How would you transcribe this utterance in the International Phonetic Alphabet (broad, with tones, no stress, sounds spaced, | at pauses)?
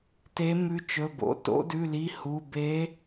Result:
t e˨˦ m ʉ˨˦ t͡ʃ ɵ˩˧˩ b o̰˩˧˩ t o̰˨˦ d ʉ˩˧˩ l i˩˧˩ h u˩˧˩ b e˨˦